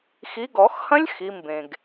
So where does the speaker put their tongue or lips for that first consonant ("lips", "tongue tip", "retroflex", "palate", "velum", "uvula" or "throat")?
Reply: velum